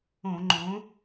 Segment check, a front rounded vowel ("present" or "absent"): absent